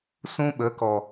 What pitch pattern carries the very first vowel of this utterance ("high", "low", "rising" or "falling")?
high